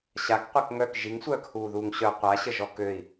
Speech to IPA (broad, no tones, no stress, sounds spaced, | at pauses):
ɕ a k qʷ ɛ k ŋ œ k ʒ i ŋ sʷ œː k h uː ð uː ŋ ɕ œ qʷ a ɕ ə ʒ ɔ k ø i̯